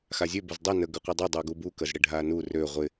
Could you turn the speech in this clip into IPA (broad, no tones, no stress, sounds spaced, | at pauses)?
x a zʲ ø b ʊ z dˤ ɪ n ə ɡ ʏ qʷ ɪ dˤ o dˤ u ɡ u b u k ə z ɽ ɪ ɖʱ a n u r ø ʁʷ ɪ